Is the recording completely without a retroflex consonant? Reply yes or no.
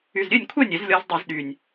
yes